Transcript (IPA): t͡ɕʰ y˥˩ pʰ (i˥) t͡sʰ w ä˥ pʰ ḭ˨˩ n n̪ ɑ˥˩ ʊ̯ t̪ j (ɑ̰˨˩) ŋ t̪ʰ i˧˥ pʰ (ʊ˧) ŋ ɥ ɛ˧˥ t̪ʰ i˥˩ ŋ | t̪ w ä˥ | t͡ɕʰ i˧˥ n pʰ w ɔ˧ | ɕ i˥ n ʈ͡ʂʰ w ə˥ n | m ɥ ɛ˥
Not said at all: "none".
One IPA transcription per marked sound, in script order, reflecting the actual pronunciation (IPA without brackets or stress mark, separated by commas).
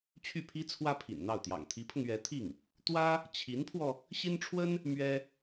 i˥, ɑ̰˨˩, ʊ˧